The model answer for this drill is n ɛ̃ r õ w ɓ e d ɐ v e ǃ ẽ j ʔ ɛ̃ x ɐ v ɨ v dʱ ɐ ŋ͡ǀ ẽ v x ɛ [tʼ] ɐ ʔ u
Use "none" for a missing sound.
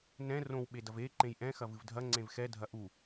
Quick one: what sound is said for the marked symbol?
dʱ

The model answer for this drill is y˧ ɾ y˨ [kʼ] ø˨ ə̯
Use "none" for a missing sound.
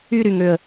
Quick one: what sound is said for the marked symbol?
ŋ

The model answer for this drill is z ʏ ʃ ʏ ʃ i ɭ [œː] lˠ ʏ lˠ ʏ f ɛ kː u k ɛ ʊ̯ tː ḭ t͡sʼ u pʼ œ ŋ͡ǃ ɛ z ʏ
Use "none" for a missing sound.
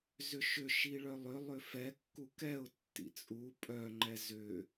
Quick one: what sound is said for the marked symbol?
œ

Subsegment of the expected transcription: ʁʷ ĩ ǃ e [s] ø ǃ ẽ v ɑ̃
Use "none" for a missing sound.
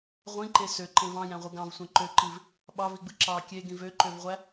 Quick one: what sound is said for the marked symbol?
s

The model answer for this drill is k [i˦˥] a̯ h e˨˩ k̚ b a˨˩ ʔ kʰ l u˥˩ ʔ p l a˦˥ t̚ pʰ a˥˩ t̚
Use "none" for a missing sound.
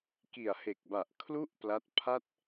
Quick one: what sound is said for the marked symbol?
i˨˩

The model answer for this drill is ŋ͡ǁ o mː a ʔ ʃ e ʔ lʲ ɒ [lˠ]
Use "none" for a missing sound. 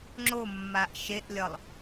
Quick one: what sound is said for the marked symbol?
lˠ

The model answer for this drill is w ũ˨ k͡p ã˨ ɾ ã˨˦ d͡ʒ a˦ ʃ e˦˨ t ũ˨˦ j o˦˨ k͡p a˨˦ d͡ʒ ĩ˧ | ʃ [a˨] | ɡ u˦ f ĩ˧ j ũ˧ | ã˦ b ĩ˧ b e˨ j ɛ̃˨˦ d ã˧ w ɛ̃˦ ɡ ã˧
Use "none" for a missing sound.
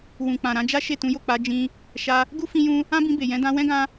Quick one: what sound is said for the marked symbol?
a˧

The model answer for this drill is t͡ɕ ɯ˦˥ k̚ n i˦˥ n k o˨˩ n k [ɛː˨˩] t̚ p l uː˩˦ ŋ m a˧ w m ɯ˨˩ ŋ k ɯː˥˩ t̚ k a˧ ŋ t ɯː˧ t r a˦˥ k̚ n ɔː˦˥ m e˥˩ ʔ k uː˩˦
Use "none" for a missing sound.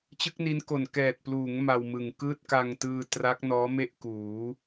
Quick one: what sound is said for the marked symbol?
ɛː˨˩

